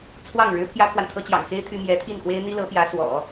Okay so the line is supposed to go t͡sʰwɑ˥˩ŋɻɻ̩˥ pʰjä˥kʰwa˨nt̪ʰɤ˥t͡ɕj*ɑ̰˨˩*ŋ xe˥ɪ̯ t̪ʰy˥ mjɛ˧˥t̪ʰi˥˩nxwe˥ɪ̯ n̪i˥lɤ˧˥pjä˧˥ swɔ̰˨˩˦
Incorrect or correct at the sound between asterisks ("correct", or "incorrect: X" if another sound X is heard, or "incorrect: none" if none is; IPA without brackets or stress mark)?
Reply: correct